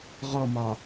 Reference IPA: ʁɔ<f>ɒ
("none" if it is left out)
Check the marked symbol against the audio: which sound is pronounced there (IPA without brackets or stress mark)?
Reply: m